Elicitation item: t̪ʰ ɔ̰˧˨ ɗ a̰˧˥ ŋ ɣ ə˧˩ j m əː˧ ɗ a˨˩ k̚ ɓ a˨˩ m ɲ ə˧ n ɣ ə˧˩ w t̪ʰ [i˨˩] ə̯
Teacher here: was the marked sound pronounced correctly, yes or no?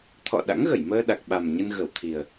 yes